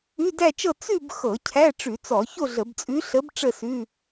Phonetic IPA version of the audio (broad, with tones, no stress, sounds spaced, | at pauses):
ʉ˧˥˧ d æ˥˧ t͡ʃ ɤ˥˧ t͡s ʉ˥˧ b x ɤ˧˩˧ cʰ æ˧˥˧ ʈ͡ʂ ʉ˧˩˧ t͡s ɔ˧˩˧ ç o˥˧ ɮ ə˧˩˧ b t͡sʼ ʉ˧˥ ɬ ə˧˥ b ʈ͡ʂ ə˥˧ s ʉ˧˥˧